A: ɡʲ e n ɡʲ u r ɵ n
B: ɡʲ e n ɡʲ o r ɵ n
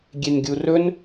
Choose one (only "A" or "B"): A